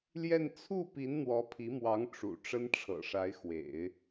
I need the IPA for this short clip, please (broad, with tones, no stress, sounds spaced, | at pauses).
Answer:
l j ɛ˥˧ n t͡sʰ u˥˩ p i˧˥ n n̪ w ɔ˧˥ pʰ i˧˥ m w ɑ˧˥ ŋ ʈ͡ʂ ṵ˨˩ ʈ͡ʂ ə˥ n ʈ͡ʂʰ ɤ̰˨˩ ʂ a˧˥ ɪ̯ x w ḛ˨˩˦ ɪ̯